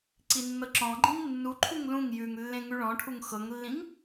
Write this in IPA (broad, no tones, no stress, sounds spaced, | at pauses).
ǀ i nː ɤ ǁ ɔ̃ ɡ͡ǃ ĩ ŋ nː u ǃʰ u ŋ l ũ ŋ j ʉ ŋ lː ẽ ŋ ʉ ɭ ɔ̃ ʈʰ u ŋ x ɤ ŋ lː ĩ ŋ